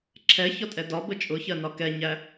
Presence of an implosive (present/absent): absent